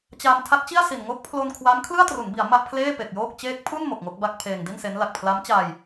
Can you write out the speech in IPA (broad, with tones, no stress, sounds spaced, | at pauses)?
t͡ɕ a˧ m tʰ a˦˥ t̚ t͡ɕ i˥˩ a̯ s i˨˩ n ŋ o˦˥ k̚ pʰ l o˧ n kʰ w a˦˥ m kʰ l ɯ˥˩ a̯ t r u˩˦ n b i˩˦ a̯ m a˥˩ ʔ pʰ l eː˥˩ p e˨˩ k̚ j oː˥˩ k̚ t͡ɕ eː˦˥ k̚ pʰ u˥˩ n m o˨˩ k̚ ŋ o˥˩ k̚ b a˥˩ k̚ pʰ eː˧ ŋ d i˥˩ n s e˦˥ n l a˨˩ k̚ pʰ l a˦˥ m t͡ɕ aː˧ j